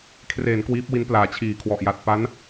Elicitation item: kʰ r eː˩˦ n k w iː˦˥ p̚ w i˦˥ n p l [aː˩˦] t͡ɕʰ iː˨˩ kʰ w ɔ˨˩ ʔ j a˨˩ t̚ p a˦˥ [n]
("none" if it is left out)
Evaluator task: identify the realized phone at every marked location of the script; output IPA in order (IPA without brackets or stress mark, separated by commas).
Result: aː˩˦, n